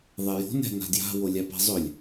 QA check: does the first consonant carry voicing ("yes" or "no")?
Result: yes